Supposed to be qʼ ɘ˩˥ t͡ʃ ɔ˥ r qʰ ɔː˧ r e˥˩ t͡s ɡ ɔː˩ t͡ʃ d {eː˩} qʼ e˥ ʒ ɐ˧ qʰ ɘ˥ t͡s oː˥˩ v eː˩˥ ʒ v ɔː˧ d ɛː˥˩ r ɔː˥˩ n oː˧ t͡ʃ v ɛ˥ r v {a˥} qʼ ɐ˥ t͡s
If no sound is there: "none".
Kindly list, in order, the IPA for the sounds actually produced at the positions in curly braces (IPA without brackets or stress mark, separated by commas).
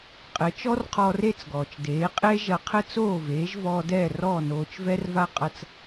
eː˩˥, a˥